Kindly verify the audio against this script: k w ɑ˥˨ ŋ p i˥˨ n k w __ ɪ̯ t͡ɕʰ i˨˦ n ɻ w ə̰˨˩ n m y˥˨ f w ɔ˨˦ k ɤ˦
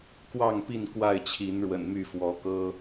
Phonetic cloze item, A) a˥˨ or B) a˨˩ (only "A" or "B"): A